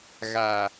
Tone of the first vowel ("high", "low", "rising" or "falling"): low